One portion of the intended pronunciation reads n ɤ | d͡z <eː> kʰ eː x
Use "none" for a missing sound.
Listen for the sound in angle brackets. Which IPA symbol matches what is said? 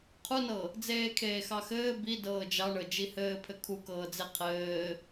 eː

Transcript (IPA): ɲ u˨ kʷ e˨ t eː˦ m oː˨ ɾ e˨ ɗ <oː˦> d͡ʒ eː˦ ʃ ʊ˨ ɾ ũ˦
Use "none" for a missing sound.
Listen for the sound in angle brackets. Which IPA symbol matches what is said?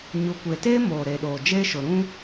oː˨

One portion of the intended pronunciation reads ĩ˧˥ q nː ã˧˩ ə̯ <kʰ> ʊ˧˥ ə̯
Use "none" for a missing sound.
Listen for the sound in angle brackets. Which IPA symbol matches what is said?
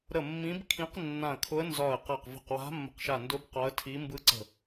kʰ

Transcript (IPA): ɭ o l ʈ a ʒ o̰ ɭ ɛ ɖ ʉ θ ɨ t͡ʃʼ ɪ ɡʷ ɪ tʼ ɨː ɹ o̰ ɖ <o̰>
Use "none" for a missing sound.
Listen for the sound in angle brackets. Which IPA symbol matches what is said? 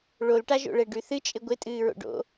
o̰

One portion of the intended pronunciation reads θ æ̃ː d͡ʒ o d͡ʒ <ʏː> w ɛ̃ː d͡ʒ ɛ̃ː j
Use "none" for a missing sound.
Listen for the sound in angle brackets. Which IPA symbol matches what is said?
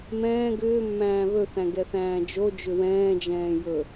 ʏ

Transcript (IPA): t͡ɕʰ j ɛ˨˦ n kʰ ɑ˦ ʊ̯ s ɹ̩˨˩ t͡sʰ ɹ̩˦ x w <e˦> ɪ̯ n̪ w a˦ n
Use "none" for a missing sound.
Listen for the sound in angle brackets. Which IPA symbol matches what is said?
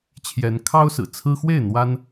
e˥˨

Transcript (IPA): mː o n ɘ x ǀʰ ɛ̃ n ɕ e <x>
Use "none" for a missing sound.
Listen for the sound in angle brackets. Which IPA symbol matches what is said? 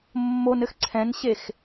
x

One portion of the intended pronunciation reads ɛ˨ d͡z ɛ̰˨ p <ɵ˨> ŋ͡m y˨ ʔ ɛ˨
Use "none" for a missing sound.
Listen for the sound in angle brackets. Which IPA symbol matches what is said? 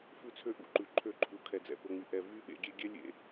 ɵ˨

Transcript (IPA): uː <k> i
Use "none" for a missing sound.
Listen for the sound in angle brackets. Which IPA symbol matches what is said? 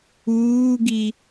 ɡ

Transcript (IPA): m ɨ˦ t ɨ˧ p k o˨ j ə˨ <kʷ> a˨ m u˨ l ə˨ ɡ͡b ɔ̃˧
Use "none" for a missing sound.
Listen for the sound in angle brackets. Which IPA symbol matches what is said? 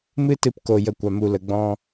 kʷ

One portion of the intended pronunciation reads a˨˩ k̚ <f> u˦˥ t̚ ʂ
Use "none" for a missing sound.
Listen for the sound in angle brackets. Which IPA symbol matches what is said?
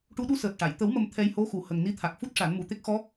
f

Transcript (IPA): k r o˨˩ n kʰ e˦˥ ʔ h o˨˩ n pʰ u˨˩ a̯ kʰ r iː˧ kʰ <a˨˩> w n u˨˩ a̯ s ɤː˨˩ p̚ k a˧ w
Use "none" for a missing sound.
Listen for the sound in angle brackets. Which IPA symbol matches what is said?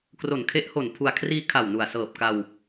a˨˩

